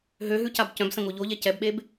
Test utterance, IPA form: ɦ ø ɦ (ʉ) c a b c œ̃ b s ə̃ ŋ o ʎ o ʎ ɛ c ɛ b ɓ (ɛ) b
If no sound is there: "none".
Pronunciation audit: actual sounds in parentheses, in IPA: ʉ, e

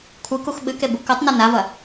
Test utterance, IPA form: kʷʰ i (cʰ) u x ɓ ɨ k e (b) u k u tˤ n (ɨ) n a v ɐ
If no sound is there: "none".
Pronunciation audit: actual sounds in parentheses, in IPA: k, b, ɨ

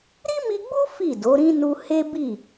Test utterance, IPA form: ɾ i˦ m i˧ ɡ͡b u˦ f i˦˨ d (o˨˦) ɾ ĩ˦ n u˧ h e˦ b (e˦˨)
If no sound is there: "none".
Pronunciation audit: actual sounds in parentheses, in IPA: o˨˦, i˦˨

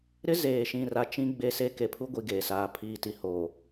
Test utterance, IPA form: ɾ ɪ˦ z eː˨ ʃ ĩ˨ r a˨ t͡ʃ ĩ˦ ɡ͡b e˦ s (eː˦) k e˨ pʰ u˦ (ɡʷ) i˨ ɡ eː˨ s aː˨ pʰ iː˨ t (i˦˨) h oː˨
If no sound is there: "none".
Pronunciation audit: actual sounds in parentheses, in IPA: e˦, ɡʷ, i˨

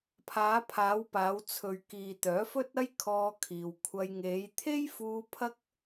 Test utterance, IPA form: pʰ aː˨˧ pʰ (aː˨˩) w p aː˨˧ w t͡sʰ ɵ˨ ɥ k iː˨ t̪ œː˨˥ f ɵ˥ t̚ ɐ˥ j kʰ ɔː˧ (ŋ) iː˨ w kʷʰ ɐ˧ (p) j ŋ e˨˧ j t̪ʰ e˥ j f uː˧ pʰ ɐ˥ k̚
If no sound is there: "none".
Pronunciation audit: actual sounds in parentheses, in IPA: aː˨˧, kʰ, none

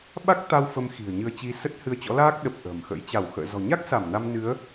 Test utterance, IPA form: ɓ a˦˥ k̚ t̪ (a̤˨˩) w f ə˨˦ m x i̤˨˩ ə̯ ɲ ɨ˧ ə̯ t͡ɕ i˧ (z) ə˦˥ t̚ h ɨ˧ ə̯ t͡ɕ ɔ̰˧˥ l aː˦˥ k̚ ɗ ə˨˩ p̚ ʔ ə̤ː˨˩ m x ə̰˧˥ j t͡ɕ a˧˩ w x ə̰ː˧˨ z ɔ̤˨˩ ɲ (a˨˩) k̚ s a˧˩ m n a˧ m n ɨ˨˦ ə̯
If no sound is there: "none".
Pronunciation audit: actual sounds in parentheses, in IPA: a˧, s, a˦˥

